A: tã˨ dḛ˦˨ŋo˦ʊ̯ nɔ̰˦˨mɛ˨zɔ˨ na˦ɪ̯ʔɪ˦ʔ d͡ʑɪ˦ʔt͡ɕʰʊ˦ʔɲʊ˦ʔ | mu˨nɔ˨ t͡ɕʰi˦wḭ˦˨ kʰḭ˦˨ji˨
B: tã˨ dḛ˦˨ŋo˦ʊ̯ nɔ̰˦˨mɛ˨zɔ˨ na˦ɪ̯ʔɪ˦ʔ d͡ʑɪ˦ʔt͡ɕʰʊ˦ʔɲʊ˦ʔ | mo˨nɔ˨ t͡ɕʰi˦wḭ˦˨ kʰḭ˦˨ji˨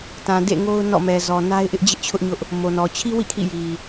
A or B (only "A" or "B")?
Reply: B